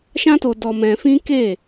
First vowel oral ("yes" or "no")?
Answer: no